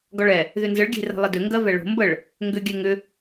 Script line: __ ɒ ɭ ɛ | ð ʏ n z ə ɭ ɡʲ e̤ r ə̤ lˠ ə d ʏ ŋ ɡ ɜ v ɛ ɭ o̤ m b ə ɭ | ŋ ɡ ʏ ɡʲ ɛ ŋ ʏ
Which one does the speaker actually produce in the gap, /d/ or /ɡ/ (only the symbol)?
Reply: ɡ